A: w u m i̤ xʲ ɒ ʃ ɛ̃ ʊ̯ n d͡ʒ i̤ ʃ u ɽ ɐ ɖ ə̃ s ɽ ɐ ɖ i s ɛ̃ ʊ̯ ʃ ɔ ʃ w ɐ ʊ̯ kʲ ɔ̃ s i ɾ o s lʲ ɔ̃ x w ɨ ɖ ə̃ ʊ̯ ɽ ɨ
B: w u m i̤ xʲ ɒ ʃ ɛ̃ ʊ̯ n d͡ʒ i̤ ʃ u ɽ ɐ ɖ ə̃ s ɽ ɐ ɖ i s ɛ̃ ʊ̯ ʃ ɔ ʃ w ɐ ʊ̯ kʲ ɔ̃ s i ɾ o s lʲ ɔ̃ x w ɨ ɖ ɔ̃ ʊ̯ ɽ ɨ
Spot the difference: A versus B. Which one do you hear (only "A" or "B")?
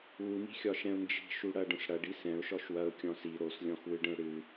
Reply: A